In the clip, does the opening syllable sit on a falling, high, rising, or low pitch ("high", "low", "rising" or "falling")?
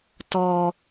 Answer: high